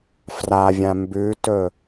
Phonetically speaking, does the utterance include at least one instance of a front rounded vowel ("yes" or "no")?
no